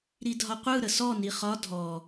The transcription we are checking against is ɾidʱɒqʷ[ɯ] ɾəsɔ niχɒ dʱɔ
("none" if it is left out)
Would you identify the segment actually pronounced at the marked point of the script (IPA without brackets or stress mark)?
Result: ɯ